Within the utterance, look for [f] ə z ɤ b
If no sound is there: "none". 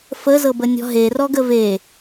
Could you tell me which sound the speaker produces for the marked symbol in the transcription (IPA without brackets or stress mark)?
f